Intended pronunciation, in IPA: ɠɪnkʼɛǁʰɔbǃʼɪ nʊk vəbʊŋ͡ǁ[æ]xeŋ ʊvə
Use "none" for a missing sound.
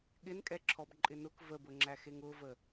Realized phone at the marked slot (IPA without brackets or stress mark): æ